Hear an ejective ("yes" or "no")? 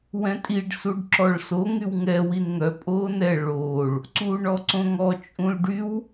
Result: yes